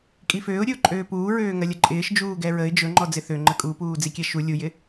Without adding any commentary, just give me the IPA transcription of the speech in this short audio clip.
kʼ i f øː ʊ̯ ɾʲ ɵ ʊ̯ ǃʼ øː p uː ɹ øː ŋ ɐ lʲ ɐ ǃʼ ɪː ʃ d͡ʒ uː ɡ ɛ ɹ ə ɪ̯ d͡ʒ ɵ ŋ͡ǃ ɔ d͡z ɪ θ ø ŋ͡ǃ ə kʼ u p uː d͡z i kʲ ɛ ʃ u lʲ u j ɪ

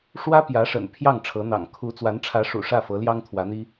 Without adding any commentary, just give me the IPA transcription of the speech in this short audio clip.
ʂ w ä˥ p j ä˧˥ ʂ ə̰˨˩ n pʰ j ɑ˥˩ ŋ ʈ͡ʂʰ ɤ˧˥ n̪ ɑ̰˨˩ ŋ kʰ u˧˥ t͡s w a˧˥ n ʈ͡ʂʰ ä˧˥ ʂ ṵ˨˩ ʂ ä˥˩ f ɤ˧˥ l j ɑ˥ ŋ t̪ʰ w ä˧˥ n̪ i˥

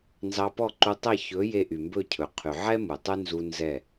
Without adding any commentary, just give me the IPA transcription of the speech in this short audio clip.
n z ɑ˧ p ɔ˦˨ ǃ u˧ tˤ ɛ˦˨ ç ɵ˨˦ j e˧ ʔ y˨ m b ɵ˦˨ cʰ ɵ˨ qʰ y˨ ʕ ɛ˦ m u˨ tˤ ʉ˦ n z u˧ n z ɛ˦˨

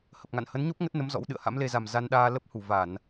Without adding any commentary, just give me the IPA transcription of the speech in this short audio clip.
h ə˨˩ p̚ ŋ a̰˧˨ n h ə˨˦ n ɲ o˦˥ p̚ ŋ ə˦˥ t̚ n ə˨˦ m z ɔ̰˧˥ w ɗ ɨ̰˧˨ ə̯ h a̰˧˥ m l e˧ z a˨˩ m z a˧ n ɗ aː˧ l ə˦˥ p̚ h u˧˩ v a˧˩˨ n

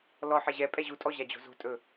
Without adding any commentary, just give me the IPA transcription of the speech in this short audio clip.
l ɔ ħ ɛ ʑ ɛ pʼ ɛ ʑ u tʼ ɔ ʑ a d͡ʑ o̤ z o̤ tʼ ɵ

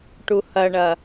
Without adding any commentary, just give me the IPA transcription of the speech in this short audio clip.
ʈ u h ɐ ɳ ɐ

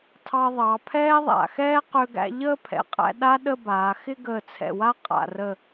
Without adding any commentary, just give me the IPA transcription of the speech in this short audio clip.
tʰ ɑ˧ ðˤ ɑ˩˧ pʰ ɛː˥ ðˤ a̰˩˧ x ɛː˥ q ø˧ ɡ æ̰˧ ʎ əː˥˧ pʰ ɛ̰˩˧ qʼ æ̰˧ ɗ a˥ ɗ ə˥˧ b aː˩˧ x ɪ˥˧ ɡ əː˧˩ t͡sʰ ɛ̰˧˩ w a˥˧ qʼ a̰˧˩ r ə˧˩

